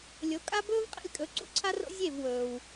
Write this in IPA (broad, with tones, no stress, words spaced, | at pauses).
lʲo˩˥ kʼa˥ bɵː˥vqʼḛ˥˩lʲkʼɵ˩˥ ǀṵ˥˩ǀʰa˥ro̰˥ zʲe˥˩vwɵː˩w